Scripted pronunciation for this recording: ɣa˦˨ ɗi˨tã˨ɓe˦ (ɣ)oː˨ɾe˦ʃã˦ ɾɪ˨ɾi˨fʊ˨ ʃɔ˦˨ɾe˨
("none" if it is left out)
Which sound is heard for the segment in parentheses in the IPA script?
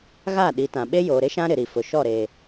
j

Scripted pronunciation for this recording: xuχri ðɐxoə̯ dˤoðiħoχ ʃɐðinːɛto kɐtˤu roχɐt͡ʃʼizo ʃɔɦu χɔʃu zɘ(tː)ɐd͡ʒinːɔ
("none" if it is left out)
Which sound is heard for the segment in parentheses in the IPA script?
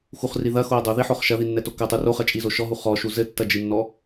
tː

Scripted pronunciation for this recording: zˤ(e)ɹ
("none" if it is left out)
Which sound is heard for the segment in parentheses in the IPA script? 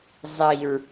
i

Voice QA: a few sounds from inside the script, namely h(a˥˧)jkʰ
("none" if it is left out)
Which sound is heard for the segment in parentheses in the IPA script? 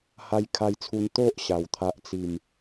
a˦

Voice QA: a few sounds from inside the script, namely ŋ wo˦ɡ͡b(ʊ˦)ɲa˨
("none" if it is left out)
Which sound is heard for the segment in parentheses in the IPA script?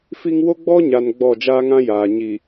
ɔ˦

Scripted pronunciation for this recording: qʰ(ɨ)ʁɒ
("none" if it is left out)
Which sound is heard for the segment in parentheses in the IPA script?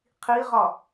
i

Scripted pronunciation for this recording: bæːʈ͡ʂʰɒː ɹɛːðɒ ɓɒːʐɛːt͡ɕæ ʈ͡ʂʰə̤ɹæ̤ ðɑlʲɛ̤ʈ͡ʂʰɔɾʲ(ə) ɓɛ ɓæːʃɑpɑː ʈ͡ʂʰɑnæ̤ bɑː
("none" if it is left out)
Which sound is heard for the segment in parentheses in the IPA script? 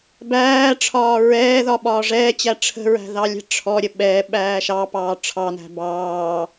ə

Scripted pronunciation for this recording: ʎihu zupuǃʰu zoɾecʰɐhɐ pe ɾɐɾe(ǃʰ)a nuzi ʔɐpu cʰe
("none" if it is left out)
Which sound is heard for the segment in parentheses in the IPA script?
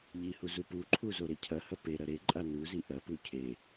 ǃʼ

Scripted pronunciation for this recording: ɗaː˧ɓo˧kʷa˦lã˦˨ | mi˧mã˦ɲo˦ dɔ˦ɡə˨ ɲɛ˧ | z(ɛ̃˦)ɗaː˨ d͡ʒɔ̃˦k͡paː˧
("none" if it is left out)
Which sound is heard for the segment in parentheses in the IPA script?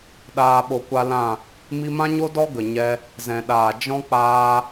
ɛ̃˨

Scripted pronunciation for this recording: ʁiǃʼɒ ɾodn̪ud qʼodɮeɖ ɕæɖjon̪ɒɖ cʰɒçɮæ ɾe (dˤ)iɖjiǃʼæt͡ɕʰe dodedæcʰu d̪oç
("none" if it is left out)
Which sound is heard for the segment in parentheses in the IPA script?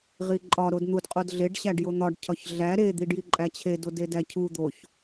d̪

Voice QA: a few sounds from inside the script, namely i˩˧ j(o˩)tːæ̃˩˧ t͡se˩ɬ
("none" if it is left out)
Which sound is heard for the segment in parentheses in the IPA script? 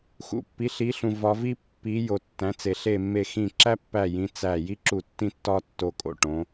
o˩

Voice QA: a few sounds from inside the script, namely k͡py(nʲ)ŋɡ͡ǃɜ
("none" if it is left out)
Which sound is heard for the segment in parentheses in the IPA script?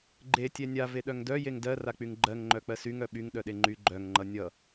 none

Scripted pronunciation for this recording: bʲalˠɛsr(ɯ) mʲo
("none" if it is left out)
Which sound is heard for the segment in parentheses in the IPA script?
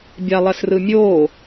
ɯ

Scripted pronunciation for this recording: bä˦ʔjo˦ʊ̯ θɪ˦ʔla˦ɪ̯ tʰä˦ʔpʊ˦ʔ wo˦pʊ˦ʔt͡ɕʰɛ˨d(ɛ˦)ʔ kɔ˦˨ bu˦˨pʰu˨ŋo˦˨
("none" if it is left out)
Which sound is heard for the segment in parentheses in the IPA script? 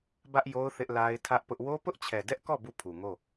ɛ˦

